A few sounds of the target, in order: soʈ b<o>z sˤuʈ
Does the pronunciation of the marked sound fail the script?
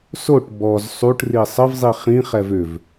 yes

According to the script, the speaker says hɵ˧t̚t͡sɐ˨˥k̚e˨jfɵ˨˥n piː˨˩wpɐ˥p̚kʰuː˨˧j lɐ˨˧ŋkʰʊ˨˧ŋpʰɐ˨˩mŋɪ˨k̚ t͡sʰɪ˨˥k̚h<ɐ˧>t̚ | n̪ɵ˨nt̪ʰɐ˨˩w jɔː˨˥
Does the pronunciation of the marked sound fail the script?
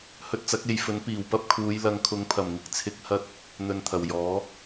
no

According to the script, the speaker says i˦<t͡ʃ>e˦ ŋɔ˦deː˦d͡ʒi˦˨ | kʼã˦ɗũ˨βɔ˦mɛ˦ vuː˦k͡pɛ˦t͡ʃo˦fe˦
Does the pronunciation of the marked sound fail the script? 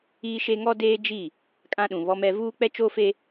yes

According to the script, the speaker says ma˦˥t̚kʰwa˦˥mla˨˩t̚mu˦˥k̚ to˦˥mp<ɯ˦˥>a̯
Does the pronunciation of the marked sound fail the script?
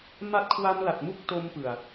yes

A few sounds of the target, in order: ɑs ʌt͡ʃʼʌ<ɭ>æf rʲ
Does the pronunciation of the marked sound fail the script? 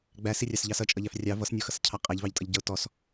yes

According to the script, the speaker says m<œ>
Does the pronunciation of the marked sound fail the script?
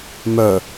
no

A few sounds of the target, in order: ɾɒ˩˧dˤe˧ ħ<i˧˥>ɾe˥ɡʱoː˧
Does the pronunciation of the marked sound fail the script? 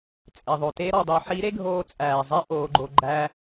no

